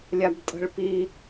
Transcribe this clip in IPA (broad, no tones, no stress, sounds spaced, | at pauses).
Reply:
lʲ a b tʼ ə̤ ɭ p i